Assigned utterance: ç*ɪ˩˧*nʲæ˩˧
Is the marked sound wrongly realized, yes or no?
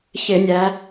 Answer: yes